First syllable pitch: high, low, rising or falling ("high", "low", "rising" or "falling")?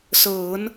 rising